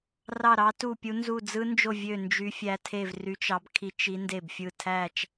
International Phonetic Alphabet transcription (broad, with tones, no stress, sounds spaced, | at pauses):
r ɑ˥˧ ɾ ɑ˦˥ t u˥˧ pʲ u˦˥ n z u˥˧ d͡z ɯ˦˥ n d͡ʒ o˥˧ vʲ ø˥˧ n d͡ʒ y˦˥ fʲ æ˦˥ tʰ e˥˧ v r y˦˥ t͡ʃ ɑ˦˥ b kʰ i˦˥ t͡ʃ i˦˥ n d e˥˧ b fʲ ɯ˥˧ tʰ æ˥˧ t͡ʃ